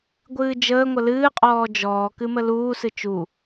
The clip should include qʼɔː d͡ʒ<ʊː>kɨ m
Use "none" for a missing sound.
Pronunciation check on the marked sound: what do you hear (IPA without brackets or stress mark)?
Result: ɔː